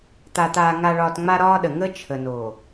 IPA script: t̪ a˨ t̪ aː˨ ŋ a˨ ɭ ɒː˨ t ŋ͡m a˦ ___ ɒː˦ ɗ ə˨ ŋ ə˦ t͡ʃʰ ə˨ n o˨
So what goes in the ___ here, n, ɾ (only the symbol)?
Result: ɾ